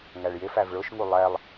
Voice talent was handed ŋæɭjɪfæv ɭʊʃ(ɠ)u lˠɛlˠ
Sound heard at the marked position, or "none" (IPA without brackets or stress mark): ŋ